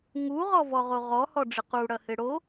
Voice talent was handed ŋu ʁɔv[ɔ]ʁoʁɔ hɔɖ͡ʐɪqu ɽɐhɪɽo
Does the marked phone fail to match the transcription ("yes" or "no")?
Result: no